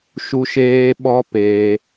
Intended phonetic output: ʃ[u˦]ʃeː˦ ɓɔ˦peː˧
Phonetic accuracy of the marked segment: correct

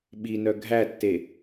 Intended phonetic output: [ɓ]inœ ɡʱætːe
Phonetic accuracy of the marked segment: correct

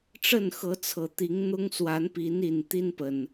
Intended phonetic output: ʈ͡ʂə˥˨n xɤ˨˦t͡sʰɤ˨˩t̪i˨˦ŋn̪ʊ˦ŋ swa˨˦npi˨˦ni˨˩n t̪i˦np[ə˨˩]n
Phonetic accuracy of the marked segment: correct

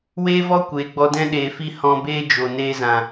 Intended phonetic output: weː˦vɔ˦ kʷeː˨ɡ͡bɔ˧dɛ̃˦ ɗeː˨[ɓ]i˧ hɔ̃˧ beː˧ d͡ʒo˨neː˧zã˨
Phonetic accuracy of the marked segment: incorrect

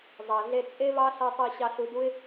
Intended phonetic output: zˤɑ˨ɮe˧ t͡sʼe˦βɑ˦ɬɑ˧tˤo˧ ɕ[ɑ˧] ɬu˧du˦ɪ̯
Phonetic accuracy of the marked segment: correct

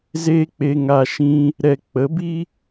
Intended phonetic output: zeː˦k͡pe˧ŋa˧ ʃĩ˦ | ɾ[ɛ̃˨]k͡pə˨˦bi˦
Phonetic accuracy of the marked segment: incorrect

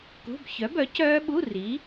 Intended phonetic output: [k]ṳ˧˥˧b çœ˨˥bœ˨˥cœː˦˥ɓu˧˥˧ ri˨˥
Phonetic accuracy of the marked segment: correct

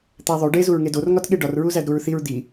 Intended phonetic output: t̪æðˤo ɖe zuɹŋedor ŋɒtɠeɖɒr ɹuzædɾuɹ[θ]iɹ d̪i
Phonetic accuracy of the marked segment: correct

